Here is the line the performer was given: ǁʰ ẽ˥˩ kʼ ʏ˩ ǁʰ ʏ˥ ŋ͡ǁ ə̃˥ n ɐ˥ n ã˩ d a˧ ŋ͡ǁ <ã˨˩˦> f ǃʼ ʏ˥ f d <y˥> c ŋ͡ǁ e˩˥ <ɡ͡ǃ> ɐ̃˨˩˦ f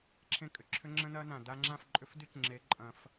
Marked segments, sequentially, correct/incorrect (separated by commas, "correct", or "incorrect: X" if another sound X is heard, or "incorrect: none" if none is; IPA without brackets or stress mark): incorrect: ã˥˩, correct, incorrect: ǃʼ